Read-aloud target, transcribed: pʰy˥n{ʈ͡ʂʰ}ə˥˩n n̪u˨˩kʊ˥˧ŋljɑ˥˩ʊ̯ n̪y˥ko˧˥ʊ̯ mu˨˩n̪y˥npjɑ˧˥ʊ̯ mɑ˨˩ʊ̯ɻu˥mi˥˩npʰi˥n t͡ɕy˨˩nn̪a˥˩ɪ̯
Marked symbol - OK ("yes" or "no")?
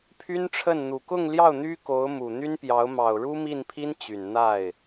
yes